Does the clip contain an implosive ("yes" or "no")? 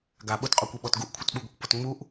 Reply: yes